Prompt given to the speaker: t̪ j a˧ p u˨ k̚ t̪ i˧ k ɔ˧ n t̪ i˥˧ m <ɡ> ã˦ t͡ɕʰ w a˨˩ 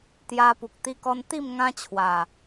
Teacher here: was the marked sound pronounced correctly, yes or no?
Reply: no